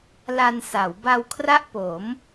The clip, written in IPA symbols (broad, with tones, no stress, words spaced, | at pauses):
la˧nsa˩˦w ba˧wkʰra˥˩ʔpo˩˦m